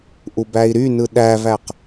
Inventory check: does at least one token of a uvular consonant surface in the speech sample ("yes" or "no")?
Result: yes